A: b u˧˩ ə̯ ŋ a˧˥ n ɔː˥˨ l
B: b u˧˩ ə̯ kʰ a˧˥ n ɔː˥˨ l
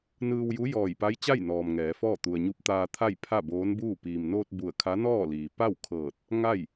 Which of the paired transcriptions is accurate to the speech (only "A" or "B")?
B